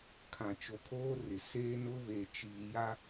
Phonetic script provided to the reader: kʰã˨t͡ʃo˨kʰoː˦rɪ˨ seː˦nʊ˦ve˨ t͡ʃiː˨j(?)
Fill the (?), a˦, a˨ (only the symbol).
a˦